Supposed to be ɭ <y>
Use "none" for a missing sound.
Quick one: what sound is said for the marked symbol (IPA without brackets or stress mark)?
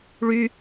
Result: y